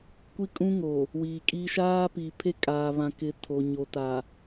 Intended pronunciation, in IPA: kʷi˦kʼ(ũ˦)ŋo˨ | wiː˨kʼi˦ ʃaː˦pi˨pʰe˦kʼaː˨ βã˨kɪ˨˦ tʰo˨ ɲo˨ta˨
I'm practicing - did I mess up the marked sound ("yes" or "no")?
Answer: no